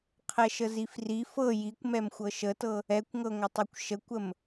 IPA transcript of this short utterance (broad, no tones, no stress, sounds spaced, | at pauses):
qʰ ɛ ʃ ə z i f r i f ɤ j i kʷ m ɛ m xʷ ɤ ʃ ə t ɤ | ɛ kʷ ŋ ɤ ŋʷ ə tˤ ɤ kʷ ʃ ə kʷ ə m